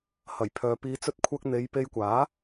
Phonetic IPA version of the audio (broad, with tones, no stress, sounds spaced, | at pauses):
h ɐ˨˩ j pʰ œː˨ p iː˨ t͡s ɵ˧ t̚ kʷʰ ɐ˧ k̚ n̪ e˨˧ j p e˧ j kʷ aː˨˥